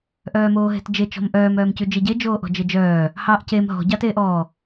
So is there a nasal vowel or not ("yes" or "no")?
no